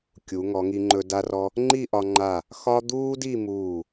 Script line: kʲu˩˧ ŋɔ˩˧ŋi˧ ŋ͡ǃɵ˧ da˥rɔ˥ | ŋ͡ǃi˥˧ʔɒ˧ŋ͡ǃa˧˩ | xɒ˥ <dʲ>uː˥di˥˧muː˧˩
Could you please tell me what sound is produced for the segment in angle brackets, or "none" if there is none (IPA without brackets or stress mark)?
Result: d̪